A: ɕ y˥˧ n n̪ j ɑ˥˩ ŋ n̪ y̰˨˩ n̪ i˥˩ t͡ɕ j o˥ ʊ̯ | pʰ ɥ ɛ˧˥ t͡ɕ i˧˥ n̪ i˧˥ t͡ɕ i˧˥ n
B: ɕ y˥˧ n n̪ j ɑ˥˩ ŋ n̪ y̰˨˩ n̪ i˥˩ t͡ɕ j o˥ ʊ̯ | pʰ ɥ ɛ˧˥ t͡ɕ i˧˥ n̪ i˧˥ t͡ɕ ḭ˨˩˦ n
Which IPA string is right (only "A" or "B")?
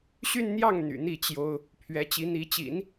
B